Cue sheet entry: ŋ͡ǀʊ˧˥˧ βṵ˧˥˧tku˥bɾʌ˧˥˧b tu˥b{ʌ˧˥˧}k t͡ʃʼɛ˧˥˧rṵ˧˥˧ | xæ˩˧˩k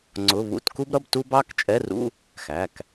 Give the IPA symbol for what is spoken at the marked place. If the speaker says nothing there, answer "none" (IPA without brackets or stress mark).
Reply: ɑ˧˥˧